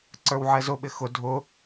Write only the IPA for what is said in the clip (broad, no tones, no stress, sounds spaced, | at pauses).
ǀ ə˞ w ʕ ɛ z ʊ ɓ ɪ x ʊ dʱ ʊ